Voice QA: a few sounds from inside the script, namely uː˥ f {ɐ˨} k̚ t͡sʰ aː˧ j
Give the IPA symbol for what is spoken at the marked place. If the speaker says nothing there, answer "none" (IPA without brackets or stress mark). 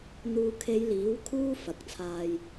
ɐ˨˥